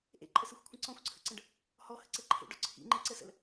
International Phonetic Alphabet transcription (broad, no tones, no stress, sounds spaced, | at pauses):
ʔ ḛ ǃʼ ə s ɯ xʷ kʷʰ ə̃ ǀ ɔ̃ xʷ ǀʰ ə̰ ǀ ə̃ ɖ | h ɔ h ə̰ ǀ ɛ ǃʰ ḛ ɖ ɔ ǀʰ ḭ ŋ͡ǃ e ǀ ə s ə̰ l